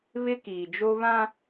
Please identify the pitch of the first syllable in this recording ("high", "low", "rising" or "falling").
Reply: high